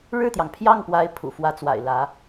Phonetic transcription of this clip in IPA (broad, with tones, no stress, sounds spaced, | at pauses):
ɻ ɻ̩˥˩ t̪ j ɑ˩ ŋ pʰ j ɑ˥˩ ŋ p w a˧˥ ɪ̯ pʰ ṵ˨˩ f w ä˧˥ t͡s w a̰˨˩ ɪ̯ l ä˧˥